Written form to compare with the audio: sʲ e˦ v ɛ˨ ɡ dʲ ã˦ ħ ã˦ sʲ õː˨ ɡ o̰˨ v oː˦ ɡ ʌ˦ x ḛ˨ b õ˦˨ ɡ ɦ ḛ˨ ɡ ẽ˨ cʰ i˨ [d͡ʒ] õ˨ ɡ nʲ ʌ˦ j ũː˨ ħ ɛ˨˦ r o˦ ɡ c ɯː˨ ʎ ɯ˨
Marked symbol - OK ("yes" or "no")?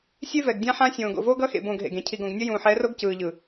no